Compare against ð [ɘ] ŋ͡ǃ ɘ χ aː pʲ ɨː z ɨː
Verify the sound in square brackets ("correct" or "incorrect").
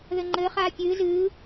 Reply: correct